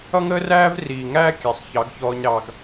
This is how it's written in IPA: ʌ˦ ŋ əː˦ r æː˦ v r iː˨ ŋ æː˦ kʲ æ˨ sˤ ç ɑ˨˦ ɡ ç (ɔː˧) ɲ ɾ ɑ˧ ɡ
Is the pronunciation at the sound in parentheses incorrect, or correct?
correct